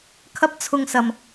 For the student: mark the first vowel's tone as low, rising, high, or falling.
high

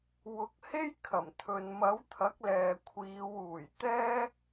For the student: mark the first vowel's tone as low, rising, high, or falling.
rising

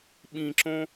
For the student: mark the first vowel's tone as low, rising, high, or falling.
high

